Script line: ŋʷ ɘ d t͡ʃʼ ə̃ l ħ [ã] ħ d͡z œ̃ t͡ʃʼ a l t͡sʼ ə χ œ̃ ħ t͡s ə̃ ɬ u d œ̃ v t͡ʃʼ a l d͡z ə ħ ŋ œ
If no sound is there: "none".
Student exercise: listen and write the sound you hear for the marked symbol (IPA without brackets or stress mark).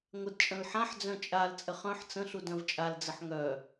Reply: ã